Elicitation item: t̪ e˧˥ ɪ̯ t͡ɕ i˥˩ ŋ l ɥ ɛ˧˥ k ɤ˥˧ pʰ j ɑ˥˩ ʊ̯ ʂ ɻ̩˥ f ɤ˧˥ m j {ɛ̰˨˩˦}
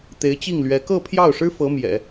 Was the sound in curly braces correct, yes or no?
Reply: yes